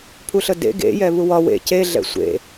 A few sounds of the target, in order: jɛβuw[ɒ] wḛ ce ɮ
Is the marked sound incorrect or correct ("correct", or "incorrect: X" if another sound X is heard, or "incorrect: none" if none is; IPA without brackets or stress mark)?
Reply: correct